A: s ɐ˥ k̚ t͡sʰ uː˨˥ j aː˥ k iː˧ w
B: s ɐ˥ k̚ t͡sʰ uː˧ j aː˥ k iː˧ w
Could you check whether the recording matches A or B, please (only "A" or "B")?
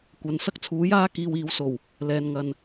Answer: A